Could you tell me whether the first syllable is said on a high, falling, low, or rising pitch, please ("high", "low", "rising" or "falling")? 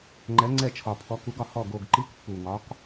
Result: rising